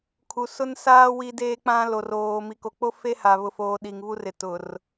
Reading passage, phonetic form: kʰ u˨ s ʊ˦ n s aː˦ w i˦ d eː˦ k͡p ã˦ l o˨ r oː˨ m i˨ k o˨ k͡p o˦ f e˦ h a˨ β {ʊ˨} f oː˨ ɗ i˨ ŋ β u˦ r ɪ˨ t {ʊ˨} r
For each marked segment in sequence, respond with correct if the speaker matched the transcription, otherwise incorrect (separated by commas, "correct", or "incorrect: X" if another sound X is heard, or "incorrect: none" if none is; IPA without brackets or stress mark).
correct, correct